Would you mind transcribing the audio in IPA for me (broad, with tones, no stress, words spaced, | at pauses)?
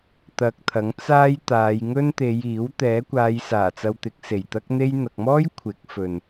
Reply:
t̪ɐ˧k̚t̪ʰɐ˨˥ŋ t͡saː˥jt̪aː˨˧j ŋɵ˥nt̪e˨˧j iː˨˥w t̪ɛː˨˥kʷaː˨˧jsaː˨˩ t͡sɐ˧wt̪ɪ˨˥k̚ se˨˩jt̪ɐ˥k̚n̪e˥j n̪ɐ˨k̚mɔː˥j kʷʰɪ˨˥k̚fɵ˨n